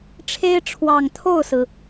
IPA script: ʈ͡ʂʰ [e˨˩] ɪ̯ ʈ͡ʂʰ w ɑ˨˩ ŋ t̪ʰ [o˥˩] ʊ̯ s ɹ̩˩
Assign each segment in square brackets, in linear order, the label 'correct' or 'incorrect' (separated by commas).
incorrect, correct